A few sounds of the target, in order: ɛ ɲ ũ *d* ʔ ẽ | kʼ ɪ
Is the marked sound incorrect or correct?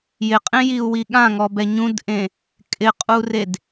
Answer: correct